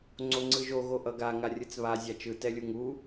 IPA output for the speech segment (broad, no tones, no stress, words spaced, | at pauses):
ŋ͡ǀoŋ͡ǀɯʒo ɣoʔʌɡa ŋarʲɯt͡sβa zʲat͡ʃɯ tɛlʲuŋu